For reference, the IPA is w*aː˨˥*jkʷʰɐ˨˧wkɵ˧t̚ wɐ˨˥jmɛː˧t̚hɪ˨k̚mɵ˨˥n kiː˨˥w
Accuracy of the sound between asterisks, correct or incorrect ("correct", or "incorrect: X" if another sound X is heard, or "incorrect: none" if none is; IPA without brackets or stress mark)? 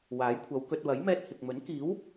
correct